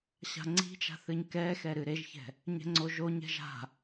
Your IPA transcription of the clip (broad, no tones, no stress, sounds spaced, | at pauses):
ɕ a̤ ŋ͡ǀ i̤ t͡ʃ a̤ θ ɨ ɲ k ɛ x ɛ ɾ ɨ ɾ e ʒ ç ɛ̤ | ɲ ɛ̤ ŋ͡ǀ o ʒ o ɲ ɛ̤ ʒ a̤